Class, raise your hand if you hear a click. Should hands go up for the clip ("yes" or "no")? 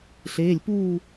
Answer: no